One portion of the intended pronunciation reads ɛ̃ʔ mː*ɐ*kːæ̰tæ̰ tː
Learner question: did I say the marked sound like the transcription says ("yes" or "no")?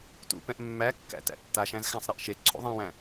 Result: no